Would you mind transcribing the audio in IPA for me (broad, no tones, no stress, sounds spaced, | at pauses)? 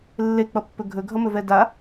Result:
lː e k͡p ʌ pː ɵ ɡʱ ɵ ɡʱ ʌ m ɵ v ɛ d a